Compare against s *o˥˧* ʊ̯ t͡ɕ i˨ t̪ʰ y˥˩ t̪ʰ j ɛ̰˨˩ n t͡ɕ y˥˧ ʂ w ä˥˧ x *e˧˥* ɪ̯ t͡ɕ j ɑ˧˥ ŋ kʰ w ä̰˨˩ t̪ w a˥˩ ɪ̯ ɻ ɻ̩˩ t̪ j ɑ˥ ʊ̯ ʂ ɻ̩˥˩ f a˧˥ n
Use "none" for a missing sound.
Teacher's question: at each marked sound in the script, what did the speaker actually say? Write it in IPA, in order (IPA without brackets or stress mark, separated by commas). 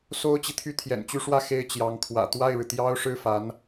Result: o˥, e˥˩